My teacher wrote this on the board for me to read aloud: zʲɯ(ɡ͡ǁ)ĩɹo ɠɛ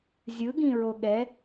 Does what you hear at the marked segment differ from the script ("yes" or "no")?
yes